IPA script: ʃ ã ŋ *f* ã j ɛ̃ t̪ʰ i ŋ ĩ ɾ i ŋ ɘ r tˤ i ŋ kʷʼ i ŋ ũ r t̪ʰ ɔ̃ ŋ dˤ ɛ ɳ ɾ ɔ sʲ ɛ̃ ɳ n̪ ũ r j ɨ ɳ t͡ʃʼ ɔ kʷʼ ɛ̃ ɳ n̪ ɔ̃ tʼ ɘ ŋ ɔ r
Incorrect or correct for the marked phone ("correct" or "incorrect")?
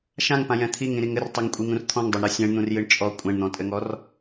incorrect